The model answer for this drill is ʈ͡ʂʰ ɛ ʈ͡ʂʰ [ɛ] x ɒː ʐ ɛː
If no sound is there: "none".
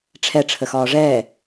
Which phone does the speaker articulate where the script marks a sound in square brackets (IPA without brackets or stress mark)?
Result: ə